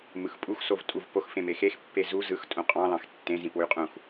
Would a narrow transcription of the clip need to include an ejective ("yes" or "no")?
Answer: yes